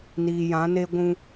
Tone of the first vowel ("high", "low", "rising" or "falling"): low